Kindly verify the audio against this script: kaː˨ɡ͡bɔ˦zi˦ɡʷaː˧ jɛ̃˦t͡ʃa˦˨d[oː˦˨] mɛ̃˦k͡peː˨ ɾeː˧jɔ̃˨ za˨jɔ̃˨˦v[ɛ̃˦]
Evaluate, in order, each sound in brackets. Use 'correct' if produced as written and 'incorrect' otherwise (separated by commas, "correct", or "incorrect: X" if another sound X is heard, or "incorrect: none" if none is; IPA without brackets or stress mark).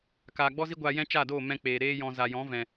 correct, incorrect: ɛ̃˨